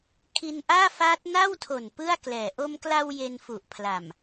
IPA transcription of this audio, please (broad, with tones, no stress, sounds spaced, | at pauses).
kʰ i˧ n ʔ aː˥˩ f aː˦˥ t̚ n a˥˩ w tʰ o˨˩ n p ɯ˥˩ a̯ k l ɛː˨˩ ʔ o˧ m k l a˧ w j e˧ n f u˨˩ ʔ pʰ l a˨˩ m